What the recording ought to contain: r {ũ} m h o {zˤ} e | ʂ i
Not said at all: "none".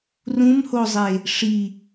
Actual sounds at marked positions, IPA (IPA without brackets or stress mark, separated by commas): ũ, zˤ